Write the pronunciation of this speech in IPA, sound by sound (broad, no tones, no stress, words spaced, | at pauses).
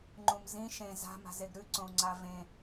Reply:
ŋ͡ǃũmzĩ ʃẽ za̤ma̤zeɡ ɾʉǀõu̯ŋ͡ǀa vẽ